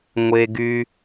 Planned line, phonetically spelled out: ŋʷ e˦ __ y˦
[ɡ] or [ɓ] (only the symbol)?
ɡ